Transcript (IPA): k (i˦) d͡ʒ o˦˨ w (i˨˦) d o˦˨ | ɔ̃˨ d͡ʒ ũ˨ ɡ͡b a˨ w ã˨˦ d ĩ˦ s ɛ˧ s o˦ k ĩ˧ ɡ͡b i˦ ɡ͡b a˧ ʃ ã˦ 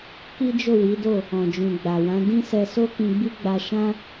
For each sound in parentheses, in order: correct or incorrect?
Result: correct, correct

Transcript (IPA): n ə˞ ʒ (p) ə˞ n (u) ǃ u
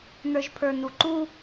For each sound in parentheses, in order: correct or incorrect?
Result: incorrect: pʰ, correct

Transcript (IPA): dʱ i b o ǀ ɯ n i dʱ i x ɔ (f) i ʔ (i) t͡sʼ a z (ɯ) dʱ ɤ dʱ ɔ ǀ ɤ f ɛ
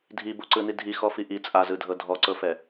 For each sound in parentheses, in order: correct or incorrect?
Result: correct, correct, correct

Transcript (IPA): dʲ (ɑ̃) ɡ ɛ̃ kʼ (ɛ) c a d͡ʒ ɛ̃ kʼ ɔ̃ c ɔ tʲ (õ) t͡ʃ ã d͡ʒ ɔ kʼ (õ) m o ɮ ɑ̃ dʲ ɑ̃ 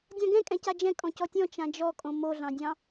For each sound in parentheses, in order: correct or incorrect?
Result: correct, incorrect: ɛ̃, incorrect: ɔ̃, correct

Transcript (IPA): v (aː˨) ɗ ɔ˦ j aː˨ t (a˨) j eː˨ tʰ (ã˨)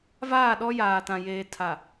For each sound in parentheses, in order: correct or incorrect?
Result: incorrect: aː˦˨, incorrect: ã˨, incorrect: a˨

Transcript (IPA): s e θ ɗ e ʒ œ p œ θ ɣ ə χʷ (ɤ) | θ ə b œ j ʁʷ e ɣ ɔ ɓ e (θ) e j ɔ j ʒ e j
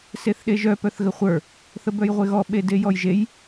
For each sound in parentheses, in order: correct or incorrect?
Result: incorrect: ə˞, incorrect: d

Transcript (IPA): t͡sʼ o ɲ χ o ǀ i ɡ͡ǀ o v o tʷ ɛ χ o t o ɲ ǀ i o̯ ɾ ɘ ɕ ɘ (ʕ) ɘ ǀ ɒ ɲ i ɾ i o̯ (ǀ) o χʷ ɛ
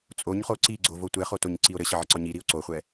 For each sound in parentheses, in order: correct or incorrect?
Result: correct, correct

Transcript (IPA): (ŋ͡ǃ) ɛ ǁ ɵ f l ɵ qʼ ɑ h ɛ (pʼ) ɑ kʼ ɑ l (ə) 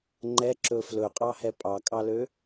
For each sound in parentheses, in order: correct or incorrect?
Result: correct, correct, incorrect: ø

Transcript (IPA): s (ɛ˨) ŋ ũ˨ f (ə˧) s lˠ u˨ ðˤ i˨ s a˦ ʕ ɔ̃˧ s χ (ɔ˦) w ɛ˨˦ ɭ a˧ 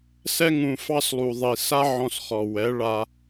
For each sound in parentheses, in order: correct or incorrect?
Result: incorrect: ɛ˦, incorrect: ɑ˧, incorrect: ɔ˨

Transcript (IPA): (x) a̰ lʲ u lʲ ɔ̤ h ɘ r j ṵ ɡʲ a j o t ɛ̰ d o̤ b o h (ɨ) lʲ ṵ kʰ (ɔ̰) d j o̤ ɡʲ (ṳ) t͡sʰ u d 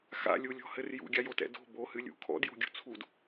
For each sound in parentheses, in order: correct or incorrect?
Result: correct, correct, correct, correct

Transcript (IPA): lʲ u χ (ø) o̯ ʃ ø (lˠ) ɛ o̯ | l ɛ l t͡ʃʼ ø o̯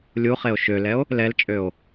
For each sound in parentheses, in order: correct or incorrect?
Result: incorrect: e, incorrect: l

